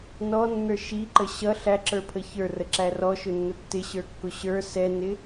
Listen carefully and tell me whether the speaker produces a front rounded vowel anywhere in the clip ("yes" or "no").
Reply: no